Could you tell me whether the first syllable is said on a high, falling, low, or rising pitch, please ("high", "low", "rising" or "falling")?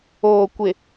low